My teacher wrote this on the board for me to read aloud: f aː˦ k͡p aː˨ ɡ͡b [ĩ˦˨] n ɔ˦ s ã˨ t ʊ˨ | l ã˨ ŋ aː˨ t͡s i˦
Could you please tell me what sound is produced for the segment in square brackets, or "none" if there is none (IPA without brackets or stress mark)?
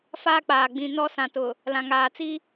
ĩ˨